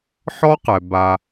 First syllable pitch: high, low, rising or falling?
high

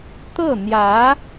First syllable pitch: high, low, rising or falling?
falling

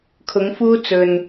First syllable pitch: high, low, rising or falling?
rising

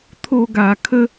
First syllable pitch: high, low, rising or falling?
high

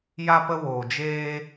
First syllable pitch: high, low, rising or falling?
high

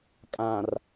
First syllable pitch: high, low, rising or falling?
low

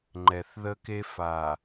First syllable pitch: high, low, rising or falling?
low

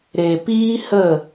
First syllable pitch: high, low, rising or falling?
low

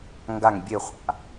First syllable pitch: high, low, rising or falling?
falling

